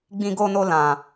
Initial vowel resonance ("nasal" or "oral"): nasal